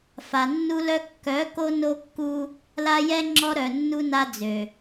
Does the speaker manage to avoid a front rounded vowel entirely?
no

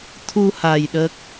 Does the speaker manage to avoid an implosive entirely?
no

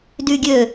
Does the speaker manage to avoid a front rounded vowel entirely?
no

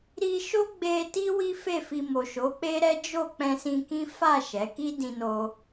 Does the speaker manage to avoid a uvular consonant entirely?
yes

